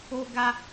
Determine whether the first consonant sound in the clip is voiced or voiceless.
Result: voiced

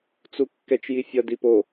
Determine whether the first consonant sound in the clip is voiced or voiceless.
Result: voiceless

